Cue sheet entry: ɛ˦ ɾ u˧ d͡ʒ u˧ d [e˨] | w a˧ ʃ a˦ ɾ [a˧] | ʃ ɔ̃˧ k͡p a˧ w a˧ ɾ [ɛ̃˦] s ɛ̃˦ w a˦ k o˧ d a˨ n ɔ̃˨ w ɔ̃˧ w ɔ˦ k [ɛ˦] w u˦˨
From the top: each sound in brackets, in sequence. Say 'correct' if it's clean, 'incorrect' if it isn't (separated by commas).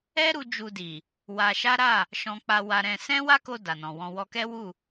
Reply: incorrect, incorrect, incorrect, correct